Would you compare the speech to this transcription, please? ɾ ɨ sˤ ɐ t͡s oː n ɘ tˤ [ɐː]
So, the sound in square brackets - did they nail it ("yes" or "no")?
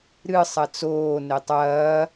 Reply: yes